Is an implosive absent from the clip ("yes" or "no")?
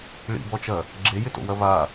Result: yes